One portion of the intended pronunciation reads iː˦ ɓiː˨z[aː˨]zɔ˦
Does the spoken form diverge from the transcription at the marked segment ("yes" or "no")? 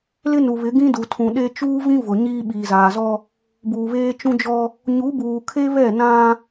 no